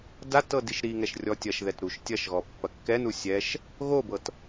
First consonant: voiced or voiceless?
voiced